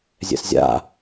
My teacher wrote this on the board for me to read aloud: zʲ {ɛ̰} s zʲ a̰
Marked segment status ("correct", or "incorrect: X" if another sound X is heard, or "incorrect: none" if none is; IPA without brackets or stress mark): correct